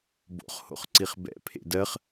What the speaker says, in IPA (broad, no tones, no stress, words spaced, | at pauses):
bo̰χ ho̰χǀiχbɛ̰ pʰḛdɜχ